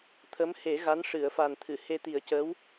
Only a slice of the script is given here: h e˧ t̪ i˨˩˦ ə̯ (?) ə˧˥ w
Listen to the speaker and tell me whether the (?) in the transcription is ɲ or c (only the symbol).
c